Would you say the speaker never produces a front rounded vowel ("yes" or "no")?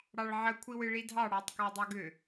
no